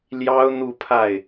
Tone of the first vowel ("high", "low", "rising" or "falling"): high